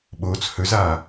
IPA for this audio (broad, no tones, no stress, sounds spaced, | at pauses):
ɓ oː t͡s h ɵ z aː